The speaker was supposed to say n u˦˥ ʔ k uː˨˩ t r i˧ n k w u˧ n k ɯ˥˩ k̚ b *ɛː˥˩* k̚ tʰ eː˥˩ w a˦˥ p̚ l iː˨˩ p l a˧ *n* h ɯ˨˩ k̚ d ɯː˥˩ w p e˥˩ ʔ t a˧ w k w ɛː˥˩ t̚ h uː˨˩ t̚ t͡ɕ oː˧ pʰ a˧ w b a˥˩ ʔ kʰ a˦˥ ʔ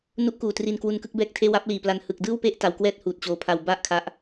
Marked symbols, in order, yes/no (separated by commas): yes, yes